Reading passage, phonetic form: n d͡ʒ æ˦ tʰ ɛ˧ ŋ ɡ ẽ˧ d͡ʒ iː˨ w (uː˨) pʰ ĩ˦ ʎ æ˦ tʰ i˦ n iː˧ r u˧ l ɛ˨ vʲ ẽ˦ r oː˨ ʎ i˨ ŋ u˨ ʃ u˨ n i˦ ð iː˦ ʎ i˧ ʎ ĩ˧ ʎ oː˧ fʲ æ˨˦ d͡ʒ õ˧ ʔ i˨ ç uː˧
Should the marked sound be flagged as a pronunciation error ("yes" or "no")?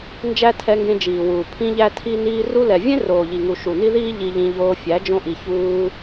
no